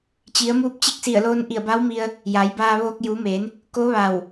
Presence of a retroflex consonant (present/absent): absent